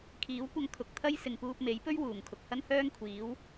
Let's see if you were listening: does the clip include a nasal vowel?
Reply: no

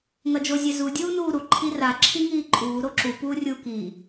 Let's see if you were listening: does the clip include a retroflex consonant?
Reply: no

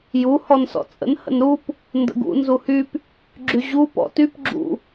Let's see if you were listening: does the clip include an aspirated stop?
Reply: no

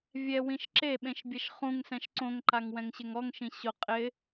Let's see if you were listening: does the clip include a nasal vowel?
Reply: yes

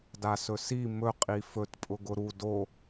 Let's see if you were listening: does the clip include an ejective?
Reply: yes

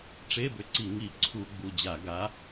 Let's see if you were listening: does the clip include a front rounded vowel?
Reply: yes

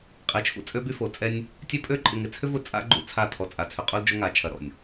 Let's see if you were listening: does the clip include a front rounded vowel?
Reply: yes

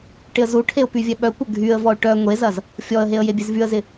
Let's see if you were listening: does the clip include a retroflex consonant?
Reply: yes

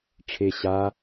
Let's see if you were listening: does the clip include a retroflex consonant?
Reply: yes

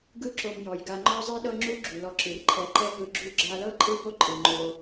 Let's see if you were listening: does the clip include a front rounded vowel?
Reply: no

